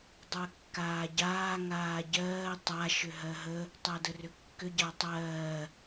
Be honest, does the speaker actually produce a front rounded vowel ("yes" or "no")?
yes